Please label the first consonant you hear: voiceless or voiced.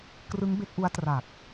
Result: voiceless